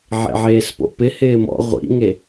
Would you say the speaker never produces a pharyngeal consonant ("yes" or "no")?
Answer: no